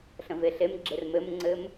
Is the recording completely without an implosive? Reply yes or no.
yes